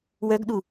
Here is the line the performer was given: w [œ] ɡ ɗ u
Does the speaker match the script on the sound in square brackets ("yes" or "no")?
yes